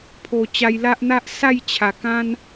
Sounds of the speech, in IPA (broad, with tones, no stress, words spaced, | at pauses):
pʰo˨˩t͡ɕa˧jla˦ʔ n̪a˦ʔ sa˥˧jt͡ɕʰa˨˩kã˦n